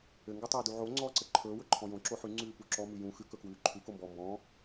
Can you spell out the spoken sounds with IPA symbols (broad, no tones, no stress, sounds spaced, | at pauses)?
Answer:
ɘ ŋ ɡ ɵ tˤ ɵː d u ʕ o ŋ͡ǀ ɔː ǀ ɘ ǃʰ ɵː w ɵ ǃʰ ɔ̃ j õ ǁ o ħ ʉ ŋ͡ǀ ʉː p u ǁ ɔ m ʉ j ũ x ʉ k ɵ k w ʉː ǃʰ ʉ k o m b ɔː m b ɔ̃ː